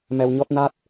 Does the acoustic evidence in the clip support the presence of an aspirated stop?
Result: no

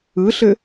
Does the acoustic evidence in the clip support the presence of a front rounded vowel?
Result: no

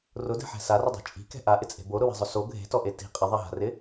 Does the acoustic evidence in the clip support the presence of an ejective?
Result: yes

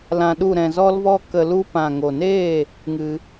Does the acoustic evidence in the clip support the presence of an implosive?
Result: yes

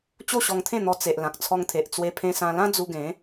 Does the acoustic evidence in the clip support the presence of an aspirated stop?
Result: yes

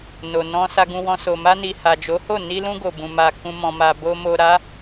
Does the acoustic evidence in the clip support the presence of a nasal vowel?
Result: yes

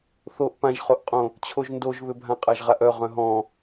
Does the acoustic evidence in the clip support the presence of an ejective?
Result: yes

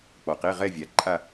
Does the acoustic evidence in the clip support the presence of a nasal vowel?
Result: no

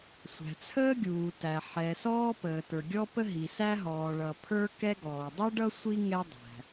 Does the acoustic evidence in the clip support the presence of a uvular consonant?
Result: no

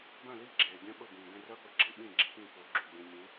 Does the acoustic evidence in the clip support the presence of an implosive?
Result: yes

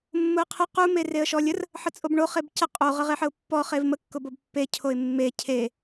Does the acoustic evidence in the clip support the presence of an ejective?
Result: yes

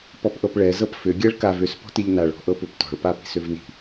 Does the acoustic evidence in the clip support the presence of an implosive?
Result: no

